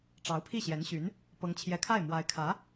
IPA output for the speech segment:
ʈ͡ʂ ɑ˧˥ ʊ̯ pʰ i˥˩ ɕ j ɛ˧˥ n ɕ y˧˥ n | p ɤ˧˥ ŋ t͡ɕʰ j ɛ˧˥ kʰ a˥˩ ɪ̯ m w a˧˥ ɪ̯ kʰ ä˧˥

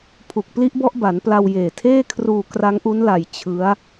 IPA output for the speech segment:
pʰ u˨˩ k̚ p l i˦˥ ʔ b ɔ˦˥ ʔ b a˩˦ n p l a˧ w j eː˨˩ tʰ eː˥˩ kʰ r uː˧ k r a˦˥ ŋ ʔ u˦˥ n l a˧ j t͡ɕʰ ɯ˦˥ a̯

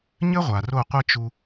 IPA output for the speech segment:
ɲ ɘ˦ ʁʷ a˨ r o˦˨ qʷ ɛ˦ t͡ʃ u˧

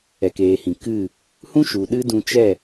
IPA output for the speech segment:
ɛ˨ k eː˨ h ĩ˨ k ɨ˦˨ | h ũ˦ ʃ u˨ ɗ ɨ˦ d ũ˧ t͡ʃ ɛ˦˨

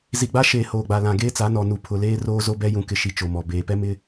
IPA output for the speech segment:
z i˨ ɡ͡b a˦ ʃ eː˨ h oː˨ ɡ͡b a˨ l ã˨ ɡ eː˦ t͡s a˨˦ n ɔ˨ n u˨ pʰ ʊ˨ l eː˦ r oː˦ z o˦ b ɛ˦ j ũ˨ k ɪ˨ ʃ i˨ t͡ʃ o˨ m ɔ˨ b eː˨ p ɛ˦ m ɪ˦

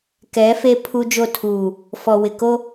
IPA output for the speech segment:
k ɛ˨˦ f e˦ pʰ u˦ d͡ʒ o˦˨ tʰ uː˨ | f ɔ˨ w ɪ˨ k o˦

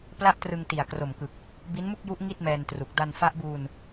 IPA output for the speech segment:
p l a˥˩ ʔ t r ɯ˧ ŋ t i˨˩ a̯ k r o˨˩ m k ɯ˨˩ k̚ | b i˦˥ n m u˥˩ k̚ j u˦˥ ʔ ŋ i˥˩ t̚ m ɛː˧ n t r u˨˩ k̚ d a˧ n f a˦˥ ʔ b uː˧ n

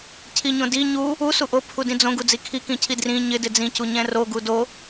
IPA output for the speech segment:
cʰ i ɲ õ d i ɲ u | u s u ʔ o pʰ u d ĩ d͡z õ ɡ u d͡z i kʰ i k ĩ cʰ i d r ĩ ɲ ɪ d ɪ d͡z ĩ c u ɲ ɛ̃ r o ɡ u d o

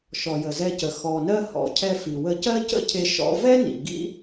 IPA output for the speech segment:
ʃ ɔ˨ j ə˨ z ɛ˧ c ə˨ x ɔ˨ n ɜ˧ h ɔ̰˨ cʰ ɛ˧ f i˨ w ə˧ c ɜ˦ c ə̰˦ cʰ e˧ ʃ ɔ̰˧ v ɛ˦ n ḭ˨ ɡ ḭ˦

